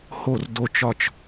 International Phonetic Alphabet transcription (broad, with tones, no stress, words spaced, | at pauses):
ho˥˨r do˦t͡ʃɒ˥˨t͡ʃ